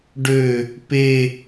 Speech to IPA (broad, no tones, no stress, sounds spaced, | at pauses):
ɖ ø | p e